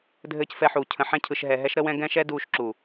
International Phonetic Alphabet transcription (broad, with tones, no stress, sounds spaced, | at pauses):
dʱ ɘː˦ c f ɛ˦ ħ uː˧ cʰ ə̃˧ ħ ɛ̃˦ cʰ ɯ˧ ʃ ɦ ɛ˧ ɦ ɛ˦ ʃ ɾ ə˦ w ɛ̃˦ ɡ ɛ̃˦ ʃ ɛ˦ d uː˧ ʃ ǁ uː˨